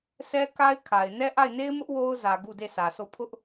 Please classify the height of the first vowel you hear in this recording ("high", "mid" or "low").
mid